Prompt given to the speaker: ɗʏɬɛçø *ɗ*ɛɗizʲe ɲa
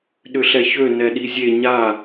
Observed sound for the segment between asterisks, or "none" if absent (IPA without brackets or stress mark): n